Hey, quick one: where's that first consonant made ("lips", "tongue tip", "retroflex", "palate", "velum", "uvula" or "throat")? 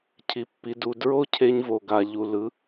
palate